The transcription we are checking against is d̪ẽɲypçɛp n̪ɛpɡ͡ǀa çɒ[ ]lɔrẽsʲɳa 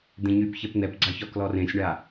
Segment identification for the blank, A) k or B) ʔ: A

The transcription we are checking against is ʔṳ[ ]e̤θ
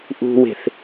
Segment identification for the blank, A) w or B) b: A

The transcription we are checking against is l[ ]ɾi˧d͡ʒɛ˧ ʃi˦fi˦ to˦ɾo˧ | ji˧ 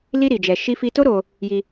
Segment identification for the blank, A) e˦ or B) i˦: B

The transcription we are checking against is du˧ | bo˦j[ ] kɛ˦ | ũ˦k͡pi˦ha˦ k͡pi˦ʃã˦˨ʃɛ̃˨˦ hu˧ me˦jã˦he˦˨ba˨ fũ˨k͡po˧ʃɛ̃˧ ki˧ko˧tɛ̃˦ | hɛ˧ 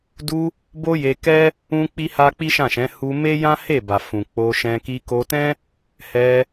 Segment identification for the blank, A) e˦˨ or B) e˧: B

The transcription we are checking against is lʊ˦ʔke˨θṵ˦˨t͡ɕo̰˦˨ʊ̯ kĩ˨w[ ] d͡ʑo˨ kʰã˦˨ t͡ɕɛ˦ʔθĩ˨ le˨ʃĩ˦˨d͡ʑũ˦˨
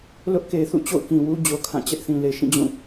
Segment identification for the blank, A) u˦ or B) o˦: A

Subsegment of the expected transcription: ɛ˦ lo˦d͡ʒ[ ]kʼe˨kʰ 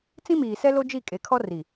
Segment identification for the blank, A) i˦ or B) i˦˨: B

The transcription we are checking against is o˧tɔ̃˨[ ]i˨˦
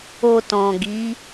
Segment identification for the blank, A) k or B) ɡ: B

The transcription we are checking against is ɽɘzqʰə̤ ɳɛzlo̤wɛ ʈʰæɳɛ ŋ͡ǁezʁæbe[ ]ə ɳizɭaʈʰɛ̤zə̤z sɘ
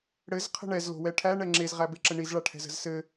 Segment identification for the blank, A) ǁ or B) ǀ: A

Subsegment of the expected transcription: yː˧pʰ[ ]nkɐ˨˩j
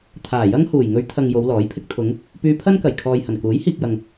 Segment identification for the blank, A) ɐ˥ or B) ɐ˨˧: A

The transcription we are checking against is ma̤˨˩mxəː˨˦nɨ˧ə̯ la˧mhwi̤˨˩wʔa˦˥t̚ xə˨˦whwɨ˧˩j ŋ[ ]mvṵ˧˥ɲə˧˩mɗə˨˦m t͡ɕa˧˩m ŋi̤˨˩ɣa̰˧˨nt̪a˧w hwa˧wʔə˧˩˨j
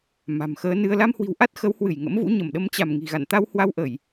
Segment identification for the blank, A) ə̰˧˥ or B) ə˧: A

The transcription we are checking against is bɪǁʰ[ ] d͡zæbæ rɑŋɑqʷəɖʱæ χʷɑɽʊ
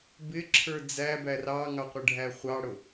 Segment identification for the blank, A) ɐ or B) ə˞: B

